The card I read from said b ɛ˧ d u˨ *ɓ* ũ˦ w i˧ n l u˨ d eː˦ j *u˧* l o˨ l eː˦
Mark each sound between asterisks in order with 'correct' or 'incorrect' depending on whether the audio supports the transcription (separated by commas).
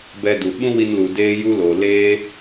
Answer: correct, incorrect